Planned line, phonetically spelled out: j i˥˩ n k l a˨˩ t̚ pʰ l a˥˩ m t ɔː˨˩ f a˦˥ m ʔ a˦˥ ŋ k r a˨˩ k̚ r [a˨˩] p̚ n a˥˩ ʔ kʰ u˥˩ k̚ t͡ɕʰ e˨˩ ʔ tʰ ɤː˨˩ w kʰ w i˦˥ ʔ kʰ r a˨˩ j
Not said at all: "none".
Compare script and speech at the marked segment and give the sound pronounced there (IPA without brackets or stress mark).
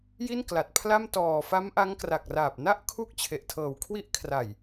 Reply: aː˨˩